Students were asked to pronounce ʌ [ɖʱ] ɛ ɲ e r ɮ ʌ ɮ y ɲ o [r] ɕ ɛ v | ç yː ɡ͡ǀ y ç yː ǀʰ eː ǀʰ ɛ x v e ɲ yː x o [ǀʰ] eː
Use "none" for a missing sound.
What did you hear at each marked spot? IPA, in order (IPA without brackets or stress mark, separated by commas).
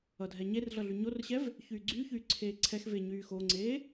dʱ, r, ŋ͡ǀ